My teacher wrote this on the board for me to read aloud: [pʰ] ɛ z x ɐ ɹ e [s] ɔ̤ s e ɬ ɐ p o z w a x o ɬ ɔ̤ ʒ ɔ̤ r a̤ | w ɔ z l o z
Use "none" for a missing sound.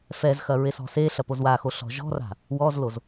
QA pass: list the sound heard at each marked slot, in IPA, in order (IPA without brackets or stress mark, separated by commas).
f, s